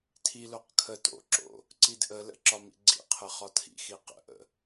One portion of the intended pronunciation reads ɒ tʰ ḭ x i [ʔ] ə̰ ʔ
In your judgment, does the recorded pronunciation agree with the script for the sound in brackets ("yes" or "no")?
no